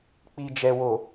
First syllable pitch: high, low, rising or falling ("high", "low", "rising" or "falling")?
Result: low